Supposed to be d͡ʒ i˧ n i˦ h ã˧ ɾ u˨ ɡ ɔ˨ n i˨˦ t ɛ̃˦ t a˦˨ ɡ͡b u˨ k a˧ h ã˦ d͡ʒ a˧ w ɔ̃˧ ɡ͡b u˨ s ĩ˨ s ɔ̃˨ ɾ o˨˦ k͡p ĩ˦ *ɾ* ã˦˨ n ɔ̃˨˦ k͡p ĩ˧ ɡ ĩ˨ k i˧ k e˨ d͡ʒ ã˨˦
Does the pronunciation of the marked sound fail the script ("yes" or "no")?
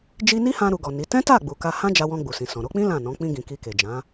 yes